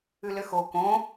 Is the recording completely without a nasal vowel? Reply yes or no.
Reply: no